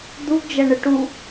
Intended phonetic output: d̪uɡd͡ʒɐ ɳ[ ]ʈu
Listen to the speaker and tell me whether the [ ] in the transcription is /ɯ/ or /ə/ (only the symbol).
ə